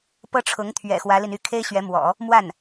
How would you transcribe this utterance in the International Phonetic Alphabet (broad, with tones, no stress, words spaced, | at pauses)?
pɤ˥ʈ͡ʂʰʊ˧˥ŋ t̪ʰɥɛ̰˨˩ xwä˧˥li˧ny˥˩ kʰe˥ɪ̯ɕɥɛ˧˥mwɔ̰˨˩˦ | mwa˥˩n